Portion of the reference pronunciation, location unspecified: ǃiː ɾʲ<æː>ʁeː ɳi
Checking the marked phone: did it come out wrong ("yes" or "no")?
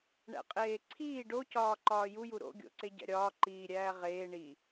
no